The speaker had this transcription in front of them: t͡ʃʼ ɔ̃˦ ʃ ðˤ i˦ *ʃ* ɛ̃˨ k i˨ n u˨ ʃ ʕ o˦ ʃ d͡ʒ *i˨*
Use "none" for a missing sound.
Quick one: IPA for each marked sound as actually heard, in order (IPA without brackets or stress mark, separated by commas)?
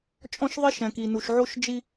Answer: ʃ, i˦